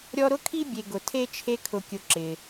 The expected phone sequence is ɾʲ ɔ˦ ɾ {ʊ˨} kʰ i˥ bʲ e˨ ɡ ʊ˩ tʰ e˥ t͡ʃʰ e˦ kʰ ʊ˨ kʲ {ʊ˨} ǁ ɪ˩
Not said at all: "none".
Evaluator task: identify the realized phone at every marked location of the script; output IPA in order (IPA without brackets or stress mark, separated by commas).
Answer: ʊ˥, ʊ˨